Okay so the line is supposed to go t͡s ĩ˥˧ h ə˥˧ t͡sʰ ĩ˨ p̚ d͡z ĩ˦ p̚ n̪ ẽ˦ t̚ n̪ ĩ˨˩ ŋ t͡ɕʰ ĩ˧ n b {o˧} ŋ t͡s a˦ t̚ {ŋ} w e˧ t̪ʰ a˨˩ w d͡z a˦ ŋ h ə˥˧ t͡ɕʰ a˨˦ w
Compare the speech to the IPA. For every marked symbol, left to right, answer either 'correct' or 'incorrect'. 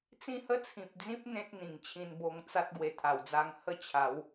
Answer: correct, incorrect

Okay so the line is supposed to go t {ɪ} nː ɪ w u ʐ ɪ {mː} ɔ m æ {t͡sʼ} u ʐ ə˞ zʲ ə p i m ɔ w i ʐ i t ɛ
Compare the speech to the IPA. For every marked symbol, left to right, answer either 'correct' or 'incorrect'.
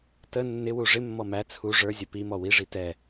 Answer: incorrect, correct, incorrect

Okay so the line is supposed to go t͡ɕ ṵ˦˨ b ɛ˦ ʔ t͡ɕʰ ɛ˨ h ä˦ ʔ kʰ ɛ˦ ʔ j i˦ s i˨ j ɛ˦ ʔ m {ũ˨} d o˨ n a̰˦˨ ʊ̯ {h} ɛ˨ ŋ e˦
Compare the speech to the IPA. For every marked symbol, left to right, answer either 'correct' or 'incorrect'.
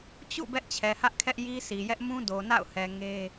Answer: incorrect, correct

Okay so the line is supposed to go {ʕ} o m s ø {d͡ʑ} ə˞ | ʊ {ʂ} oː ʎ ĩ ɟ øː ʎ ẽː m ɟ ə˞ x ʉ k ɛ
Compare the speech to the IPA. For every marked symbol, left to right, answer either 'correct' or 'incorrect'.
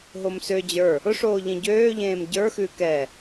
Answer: incorrect, correct, correct

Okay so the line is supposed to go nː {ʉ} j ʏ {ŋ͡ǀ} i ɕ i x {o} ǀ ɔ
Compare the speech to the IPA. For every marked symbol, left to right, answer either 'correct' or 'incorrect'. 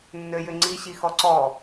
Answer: incorrect, correct, incorrect

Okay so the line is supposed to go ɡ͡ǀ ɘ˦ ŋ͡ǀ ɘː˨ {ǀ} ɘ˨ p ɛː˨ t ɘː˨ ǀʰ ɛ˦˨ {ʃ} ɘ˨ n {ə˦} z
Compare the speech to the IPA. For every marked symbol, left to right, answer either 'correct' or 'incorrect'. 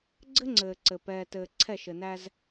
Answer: correct, correct, incorrect

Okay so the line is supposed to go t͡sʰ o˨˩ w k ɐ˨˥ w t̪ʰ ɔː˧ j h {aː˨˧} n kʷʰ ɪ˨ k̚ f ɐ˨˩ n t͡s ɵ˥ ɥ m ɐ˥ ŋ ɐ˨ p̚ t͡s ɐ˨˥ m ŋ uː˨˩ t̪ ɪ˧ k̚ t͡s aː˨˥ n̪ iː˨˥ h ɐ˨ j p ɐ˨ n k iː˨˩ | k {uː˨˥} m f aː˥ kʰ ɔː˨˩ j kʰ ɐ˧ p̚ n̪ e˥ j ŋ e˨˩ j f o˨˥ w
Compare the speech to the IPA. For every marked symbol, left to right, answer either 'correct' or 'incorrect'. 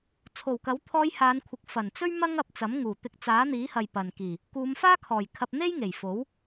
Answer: correct, incorrect

